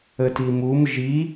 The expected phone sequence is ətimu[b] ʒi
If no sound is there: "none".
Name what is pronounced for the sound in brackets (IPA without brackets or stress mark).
m